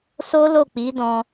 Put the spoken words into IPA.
so˦lo˦˨k͡pi˨˦dɔ̃˧

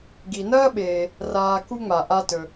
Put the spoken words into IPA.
ɡi˨nɐː˥ɓeː˨ | raː˨ ku˦ŋ͡ma˩ ʔa˦tɵ˨

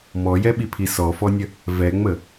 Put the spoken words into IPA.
mɔjɛɓipʰi sɔfɔnʲə | vɛŋ͡mə

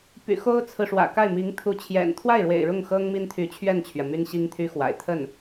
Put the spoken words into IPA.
py̰˨˩ xo˥ʊ̯t͡sʰɹ̩˨ʂwä̰˨˩ka˥˩ɪ̯ mi˧˥ŋ t̪ʰu˧˥t͡ɕʰjɛ̰˨˩n t̪ʰwa˥˩ɪ̯ɻwḛ˨˩ɪ̯ ɻʊ˥˩ŋxɤ˥ŋ mi˥nt̪ʰy˧˥t͡ɕʰɥɛ˥˩nt͡ɕʰɥɛ˩ my˥nɕi˥ŋt̪ʰy˥xwa̰˨˩ɪ̯ t̪ʰə˥˩n

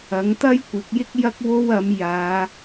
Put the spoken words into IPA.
ɐ˨˥ŋt̪ɐ˥jkʷɪ˨˥k̚ jɪ˥k̚jɐ˥k̚ wo˥wɐ˨˥m jaː˨˧

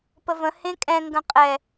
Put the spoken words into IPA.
pəvə̃ hẽkʼɛ̃ ŋɡə̃qʼɛ

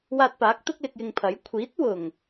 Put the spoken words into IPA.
waː˧t̚paː˨˥k̚ t̪ʊ˥k̚lɪ˧k̚jɪ˧ŋpʰɐ˨˥j kʷʰiː˨˥t̚ wʊ˨˩ŋ

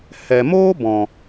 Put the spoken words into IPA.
hɛ˨moː˦ bɔ̃˨

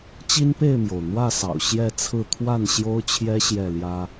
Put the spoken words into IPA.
t͡ɕi˦npe˥˨ɪ̯mjo˩ʊ̯ n̪wä˥˨sɑ̰˨˩ʊ̯ ɕjɛ˥˨t͡sʰɹ̩˥˨ t̪ʰwa˥˨nɕjo˦ʊ̯t͡ɕʰjɛ˦ ɕjɛ˥˨ljä˦

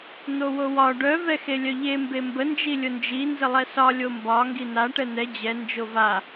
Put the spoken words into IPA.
n̪owowɒ ɖœ vɛxelʲœʎe mbembə nd͡ʒilʲʊnd͡ʒi nzəlˠɛsɒ lʲombɒ ŋɡina ʈɛn̪ɛ d͡ʑɛ nd͡ʒova

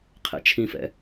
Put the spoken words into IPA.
qʰɛ̰t͡ʃʰĩfɛ̰

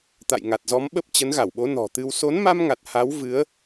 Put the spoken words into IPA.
t̪a̰˧˨jŋa˨˩t̚zɔ˨˦mɓə˦˥p̚ t͡ɕə˨˦nɣa˧˩wɓo˨˦ nɔ̤˨˩t̪ɨ˧w so˨˦nma˧mŋa˨˩t̚ ha˨˦wvɨ˨˦ə̯

